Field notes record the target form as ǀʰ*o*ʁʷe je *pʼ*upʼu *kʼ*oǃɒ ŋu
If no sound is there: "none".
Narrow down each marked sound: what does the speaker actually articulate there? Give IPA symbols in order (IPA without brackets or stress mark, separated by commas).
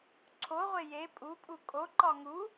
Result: o, pʼ, kʼ